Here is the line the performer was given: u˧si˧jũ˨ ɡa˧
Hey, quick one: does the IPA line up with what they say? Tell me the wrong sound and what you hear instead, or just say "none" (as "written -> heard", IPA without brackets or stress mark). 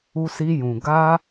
none